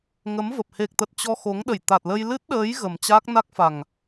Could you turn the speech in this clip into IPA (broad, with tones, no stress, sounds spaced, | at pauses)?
ŋ ə˨˦ m v ə˨˩ p̚ h e˨˩ k̚ t̪ ə˨˩ t̚ t͡ɕ ɔ˧ x o˨˦ ŋ ɗ ə˧˩ j t̪ a˨˩ t̚ l ə˧ j l ɨ˦˥ t̚ ɗ əː˨˦ j ɣ ə˨˩ m t͡ɕ aː˦˥ k̚ n a˦˥ k̚ f a˨˩ ŋ